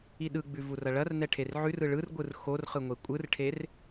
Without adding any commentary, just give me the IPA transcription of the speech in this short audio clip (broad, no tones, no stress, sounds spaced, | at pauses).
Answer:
i ɗ ɯ ɡ͡b ʉ v u r ɐ ɭ ɐ r n ɛ ʈʰ e r ʕ ʉ r ɯ ɭ ɯ r ɡʷ ɯ r x o r χ ɯ ŋʷ e kʷʼ ɯ r ʈʰ e r